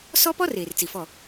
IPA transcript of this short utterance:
s ɔ˦ p ɔ˦ r eː˨ r t͡s i˨ f ɔ˦˨

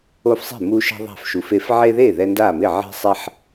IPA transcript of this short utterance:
o˦ f sˤ e̤˥˩ m u˦ ʃ a̤˦ ðˤ a̤˥˩ f ʃ u˨ f e˦ f ʕ e˦ ð e˥˩ ð ɛ˦ n d a˥˩ m ɪ˥˩ ʕ e̤˦ sˤ ɛ˦ ħ

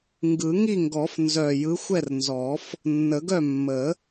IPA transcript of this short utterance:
ŋ ɡ ɯ˨˩˦ ŋ i˥˨ ŋ ɡ ɔ˨˩˦ f n z œ˨˩ j ɯ˨˥ xʷ ɛ˥˨ r n z ɔ˨˩˦ f | nː ə˨˩˦ ɡ œ˥˨ mː ə˨˩˦

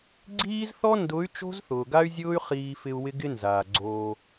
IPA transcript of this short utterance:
ɡ͡ǀ iː˦ z θ ɔ˦ n d ʊ˨˦ y̯ t͡ʃ o̤˦ z θ ʊː˨ ɡ a˦ y̯ zʲ ʊː˦ y̯ χ iː˨ f ɪ˨ u̯ w ɪ˦ ɡ ɪ˦ n z aː˨ ɡ͡ǀ oː˦

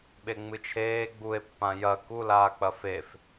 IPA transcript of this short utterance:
ɓ e ŋ͡m ɨ t͡ʃʰ eː ɡ͡b u e̯ pː ã j ɐ k u l aː k͡p ɐ f e f

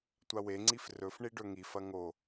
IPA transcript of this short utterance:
tʷ a w e ŋ͡ǀ i f r ɵ f ɳ i ɖ ɵ ŋ i f ɐ ŋ o

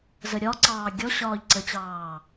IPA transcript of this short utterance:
z ə ɾʲ ɒ ǀ ɑː ɡʲ ɔ ɕ ɒː ʎ ǀ ə t͡ɕ ɑː

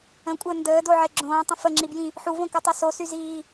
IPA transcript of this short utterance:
ə̃ kʷʼ əː n d əː d o ʕ e ɡ͡ǁ õː tˤ ə̃ f ə ŋ͡ǁ i b j ĩ | ħ u v õ k u tˤ ø s o s y z iː

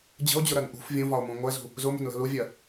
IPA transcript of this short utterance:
d͡ʑ ə̤ o̯ d͡ʑ ʊ ɾ ɜ n ʔ ṳ f vʲ ũ v ɒ o̯ m ũ ŋʷ ɛ z ṳ | z ʊ m ə̤ n l ə̤ l u vʲ ɜ

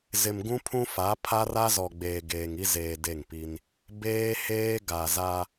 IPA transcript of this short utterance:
z ɪ˨ m ɡ ũ˦ pʰ ũ˦ f a˨˦ pʰ a˦ r a˦ z ɔ˨ ɡ͡b eː˨ ɡ eː˨ ŋ i˦ z eː˨ d e˦˨ ŋ p i˦ n | b eː˦ h eː˦ ɡ a˨ z a˦

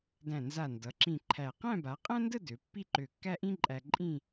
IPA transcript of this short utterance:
d æ̃˧˩ n z a˧˩ n d ʌ˩˧ ǁ ĩ˧˩ ǃʰ æ˧˩ q æ̃˥˧ b a˩˧ qʼ æ̃˥ n d ə˥˧ d ø˩˧ pː i˥˧ ǃ ø˧˩ kː æ˥ ʔ ĩ˥ ǃʼ æ˧ ǃʼ ĩ˥˧

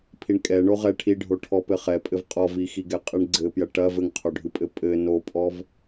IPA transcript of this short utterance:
pʰ i ɳ kʼ ɛ ɳ o ʁ ɛ ʈʰ i ɖʱ o ʈʰ ɔ p ɘ χ ɛ pʼ ɘ v qʼ ɔ v i x i ɡ ɛ qʼ ɨ ɳ ɡ͡ǀ ɘ p j ɐ ʈ ɐ v ɘ ŋ qʰ o ɖʱ ɨ pʼ ɘ pʼ ɘ n o pʼ ɔ v

